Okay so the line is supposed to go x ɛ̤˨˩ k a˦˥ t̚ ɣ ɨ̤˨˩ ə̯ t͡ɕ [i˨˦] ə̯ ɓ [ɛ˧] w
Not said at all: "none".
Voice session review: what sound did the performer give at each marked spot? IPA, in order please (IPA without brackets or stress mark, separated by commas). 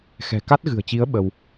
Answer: i˨˦, ə˧